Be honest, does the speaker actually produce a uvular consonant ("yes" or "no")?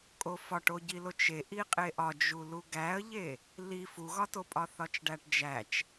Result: yes